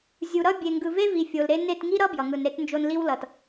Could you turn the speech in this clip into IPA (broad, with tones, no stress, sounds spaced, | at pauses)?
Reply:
zʲ u˨ ɾ ʌ˦ bʲ e˨ ŋ ɡ ɯ˨ v e˦ v i˨ fʲ o˨ l ɾ e˦ n e˦˨ t ŋ i˦ ɾ ʌ˦ b j ʌ˨ ŋ ɯ˨ n ɾ e˦ t n d͡ʒ o˦ n l i˦ w l ʌ˨ t